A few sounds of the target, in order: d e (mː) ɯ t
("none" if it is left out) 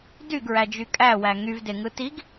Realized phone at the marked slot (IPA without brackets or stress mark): ŋ